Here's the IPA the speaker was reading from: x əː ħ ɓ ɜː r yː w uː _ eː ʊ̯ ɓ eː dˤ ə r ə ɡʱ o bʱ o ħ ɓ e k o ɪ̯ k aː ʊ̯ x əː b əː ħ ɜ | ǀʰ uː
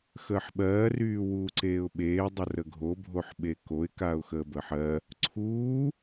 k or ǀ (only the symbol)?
ǀ